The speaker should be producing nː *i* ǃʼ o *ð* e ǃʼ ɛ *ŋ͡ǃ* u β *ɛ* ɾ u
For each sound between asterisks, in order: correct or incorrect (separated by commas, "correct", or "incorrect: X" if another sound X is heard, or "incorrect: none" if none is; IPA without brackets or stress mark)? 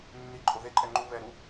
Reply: correct, correct, correct, correct